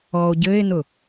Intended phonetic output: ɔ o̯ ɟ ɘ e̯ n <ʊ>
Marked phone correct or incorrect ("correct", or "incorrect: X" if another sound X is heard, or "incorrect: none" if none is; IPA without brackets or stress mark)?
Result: correct